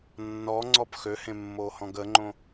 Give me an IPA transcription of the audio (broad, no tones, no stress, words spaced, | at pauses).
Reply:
nːɔŋ͡ǀɔp xøhẽmːohɔ̃ɡ əŋ͡ǃõ